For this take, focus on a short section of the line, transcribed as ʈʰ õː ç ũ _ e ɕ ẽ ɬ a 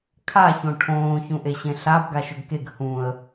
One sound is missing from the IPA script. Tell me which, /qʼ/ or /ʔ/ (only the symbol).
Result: ʔ